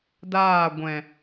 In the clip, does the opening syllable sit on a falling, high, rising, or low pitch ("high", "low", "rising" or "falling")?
falling